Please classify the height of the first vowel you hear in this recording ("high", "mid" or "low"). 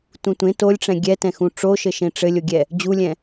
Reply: high